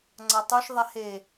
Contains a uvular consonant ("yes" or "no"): no